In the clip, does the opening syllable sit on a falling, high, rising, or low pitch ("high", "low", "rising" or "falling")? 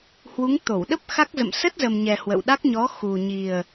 rising